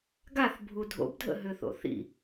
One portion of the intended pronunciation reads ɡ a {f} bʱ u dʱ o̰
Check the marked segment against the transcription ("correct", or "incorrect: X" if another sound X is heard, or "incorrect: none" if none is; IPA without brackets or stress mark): incorrect: θ